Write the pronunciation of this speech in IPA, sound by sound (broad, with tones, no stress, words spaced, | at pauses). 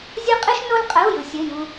zʲɤ˥qʼɨ˥ʃno˥lqʼə˧˥˧u̯ jɯ˧sʲə˧˥˧ jũ˧